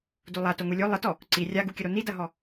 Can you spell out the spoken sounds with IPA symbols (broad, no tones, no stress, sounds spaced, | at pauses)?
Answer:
d u lˠ a t o ŋ u lʲ o lˠ ə t ɔ | ǀ i rʲ a ɡ u kʲ ə ɾ o n i d ɐ ɦ ɔ